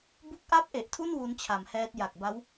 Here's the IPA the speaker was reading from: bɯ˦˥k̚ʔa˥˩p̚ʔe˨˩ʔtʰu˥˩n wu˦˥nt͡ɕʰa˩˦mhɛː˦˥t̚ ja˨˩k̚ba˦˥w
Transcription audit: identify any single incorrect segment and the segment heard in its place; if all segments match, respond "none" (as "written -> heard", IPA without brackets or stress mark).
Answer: ɯ˦˥ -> u˦˥